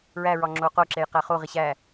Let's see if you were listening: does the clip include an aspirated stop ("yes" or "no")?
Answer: no